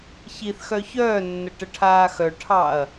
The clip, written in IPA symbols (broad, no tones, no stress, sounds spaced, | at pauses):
ç i θ x œ ç œː nː ə ʈ ə ʈʰ aː x œ ʈʰ ɑ ɐ̯